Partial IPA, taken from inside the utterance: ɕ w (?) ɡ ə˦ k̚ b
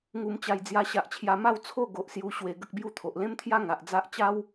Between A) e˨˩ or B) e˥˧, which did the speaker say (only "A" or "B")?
A